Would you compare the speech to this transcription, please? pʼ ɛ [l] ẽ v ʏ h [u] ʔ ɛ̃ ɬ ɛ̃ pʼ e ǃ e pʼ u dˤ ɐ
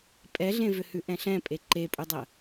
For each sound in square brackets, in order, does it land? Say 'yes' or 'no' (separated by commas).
no, no